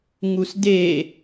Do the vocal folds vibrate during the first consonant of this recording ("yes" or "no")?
yes